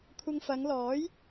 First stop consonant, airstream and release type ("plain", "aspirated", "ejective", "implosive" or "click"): aspirated